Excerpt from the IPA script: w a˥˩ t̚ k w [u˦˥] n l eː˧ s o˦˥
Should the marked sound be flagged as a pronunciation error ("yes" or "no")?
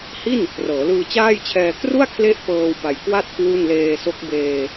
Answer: yes